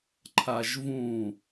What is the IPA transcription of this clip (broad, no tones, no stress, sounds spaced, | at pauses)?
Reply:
ǃʰ a ʒ v ũ